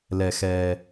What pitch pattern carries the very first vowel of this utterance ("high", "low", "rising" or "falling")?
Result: low